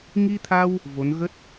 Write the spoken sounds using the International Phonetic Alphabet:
ŋ i˧ t̪ʰ a˧ w | v o˨˦ n ɣ ə˦˥ t̚

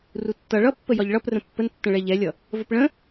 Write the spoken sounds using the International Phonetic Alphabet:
r u tː ʌ ɭ ʌ pː ə j ɒ ʎ ɭ ʌ p r ə̃ pː ə n tː ə̃ ɭ ɛ ʎ ɛ lʲ ʌ | v ə p ɭ ə̃

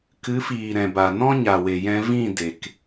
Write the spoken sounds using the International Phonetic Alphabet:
k ɨ˨˦ f iː˨ ɾ ɛ̃˨ b a˨ n ɔ̃˦ ɲ a˨ w e˨ j ɛ̃˧ v ĩ˦˨ d e˨ k

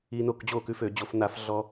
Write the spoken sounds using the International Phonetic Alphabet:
i˧ n o˥˩ k d͡ʑ o˥˩ k ʉ˧ f ø˧˩˧ d͡ʑ o˧˩˧ f n a˧˩˧ f ɮ ɔ˧

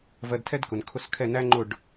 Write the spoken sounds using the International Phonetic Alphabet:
v ɜ˧ d tʰ ɛ˥ d k ʊ˩ n kʰ ʊ˥˩ s kʰ ɛ˥˩ n æ˥ ŋ͡ǃ ʊ˥˩ ɖ

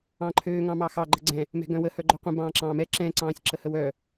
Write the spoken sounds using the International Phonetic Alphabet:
ɑ̃ ǃʰ øː ŋ ɑ̃ m ɑ x ɑ ɡ͡ǃ ə ɡ͡ǀ ɛ̃ | m ɛ̤ ɡ œ̃ w ə h œ ɡ͡ǃ œ qʷ ə̃ b ɑ̃ː ǁ ɑ̃ː m ɛ ǁ ɛ̃ ǀ ɑ̃ː sʲ ǁ ə h ə w œ

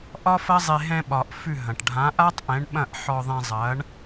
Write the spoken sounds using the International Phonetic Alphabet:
ʔ ɒ˥ f ɐ˥ zˤ e˧ ɦ ɛ̃˧ ɓ ɒ˩ ʔ f ʉ˥˩ ɦ ɐ̃˩ ʈ ɖʱ ã˩˥ ʔ a˥ tˤ ʔ ɛ̃˩˥ ɳ ɓ ɐ̃˥˩ ʔ ħ ɔ˧ ðˤ ɛ̃˧ zˤ ɐ˩˥ ɳ

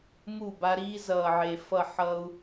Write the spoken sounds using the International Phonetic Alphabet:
m u˦˨ b a˦ ɾ iː˦ z ʌː˨ ʕ e˨ f ʌ˦˨ ħ ʌ˦ u̯

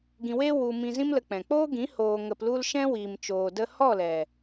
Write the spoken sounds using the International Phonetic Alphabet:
ɡ ĩ˧ w e˦ w u˧ m ĩ˧ z ĩ˦ m l ə˧ k͡p ɛ̃˨ k͡p oː˦ ɡ ĩ˨˦ h oː˧ ŋ ə˧ p l u˦ l ʃ ɛ̃˦ w iː˨ m t͡ʃ oː˨ d ə˧ h ɔ˦˨ l ɛ˨

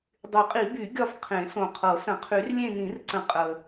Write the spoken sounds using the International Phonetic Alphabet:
dˤ y˨˩˦ qʼ i˨˩˦ b y˨˩˦ ɡʲ ɒ˦˨ f qʰ ẽ˨˩˦ s õ˨˩ qʰ ɤ˨˩˦ s ə̃˨˩˦ qʰ y˨˩˦ r lʲ ẽ˦˨ n ĩ˨˩˦ r ǀ ə̃˨˩ qʼ ə˨˩

